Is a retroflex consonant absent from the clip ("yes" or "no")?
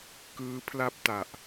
yes